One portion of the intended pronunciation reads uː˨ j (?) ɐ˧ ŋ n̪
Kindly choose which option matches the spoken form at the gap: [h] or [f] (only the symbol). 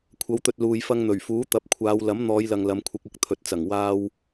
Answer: f